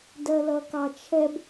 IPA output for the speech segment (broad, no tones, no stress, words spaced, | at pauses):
dɜlʌkɑt͡ʃʰɛb